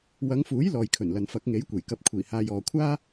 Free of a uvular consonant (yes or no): yes